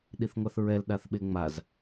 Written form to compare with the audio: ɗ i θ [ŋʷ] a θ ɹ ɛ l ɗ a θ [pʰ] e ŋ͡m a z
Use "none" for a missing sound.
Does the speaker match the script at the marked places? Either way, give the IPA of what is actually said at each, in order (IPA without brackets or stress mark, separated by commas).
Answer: ŋʷ, ɓ